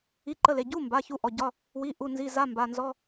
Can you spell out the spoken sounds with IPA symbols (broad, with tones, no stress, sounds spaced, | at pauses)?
i˧˥˧ ǃ ə˧˥˧ l e˩˧˩ ɟ u˧˥˧ m b a˩˧˩ ç u˧˥˧ ʔ ɔ˩˧˩ ɟ ɒ˧˥˧ | w i˧˥˧ ʔ u˧˥˧ n z i˧˥˧ z a˧˥˧ m b a˩˧˩ n z ɔ˧˥˧